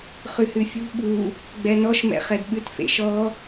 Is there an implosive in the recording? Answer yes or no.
yes